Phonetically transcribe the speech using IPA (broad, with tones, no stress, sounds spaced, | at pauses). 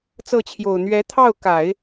t͡s ɤ˥˩ t͡ɕʰ j o˨˩ ʊ̯ n̪ ɥ ɛ˧˥ t̪ʰ ɑ˥˩ ʊ̯ k a˨˩˦ ɪ̯